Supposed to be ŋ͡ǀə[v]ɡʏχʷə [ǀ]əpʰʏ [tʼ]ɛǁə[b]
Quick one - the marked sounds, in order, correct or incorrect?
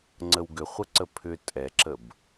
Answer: incorrect, correct, correct, correct

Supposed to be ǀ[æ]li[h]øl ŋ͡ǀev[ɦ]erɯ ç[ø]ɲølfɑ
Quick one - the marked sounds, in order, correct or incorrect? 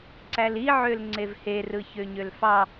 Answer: correct, incorrect, incorrect, correct

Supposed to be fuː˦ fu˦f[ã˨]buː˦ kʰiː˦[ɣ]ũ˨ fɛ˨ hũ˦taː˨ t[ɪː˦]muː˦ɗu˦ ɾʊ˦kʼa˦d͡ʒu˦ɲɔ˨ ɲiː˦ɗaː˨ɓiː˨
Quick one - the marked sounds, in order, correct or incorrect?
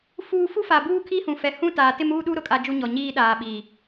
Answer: incorrect, incorrect, incorrect

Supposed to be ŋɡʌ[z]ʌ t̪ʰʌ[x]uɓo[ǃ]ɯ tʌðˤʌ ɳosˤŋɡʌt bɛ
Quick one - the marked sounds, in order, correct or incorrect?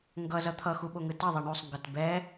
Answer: correct, correct, incorrect

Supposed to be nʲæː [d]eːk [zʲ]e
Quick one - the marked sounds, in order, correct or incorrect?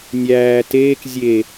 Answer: incorrect, correct

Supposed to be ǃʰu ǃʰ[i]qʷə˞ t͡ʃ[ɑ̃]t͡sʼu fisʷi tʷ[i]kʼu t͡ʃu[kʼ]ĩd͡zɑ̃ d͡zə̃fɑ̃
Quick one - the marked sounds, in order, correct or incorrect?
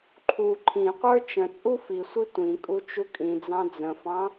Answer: incorrect, incorrect, incorrect, correct

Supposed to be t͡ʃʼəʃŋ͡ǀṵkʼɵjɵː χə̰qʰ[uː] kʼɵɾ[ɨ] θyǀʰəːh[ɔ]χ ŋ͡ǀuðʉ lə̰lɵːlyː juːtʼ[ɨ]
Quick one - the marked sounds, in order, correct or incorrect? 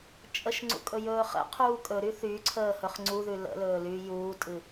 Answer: correct, incorrect, incorrect, correct

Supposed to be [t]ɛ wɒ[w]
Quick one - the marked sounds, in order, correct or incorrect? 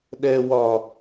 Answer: incorrect, incorrect

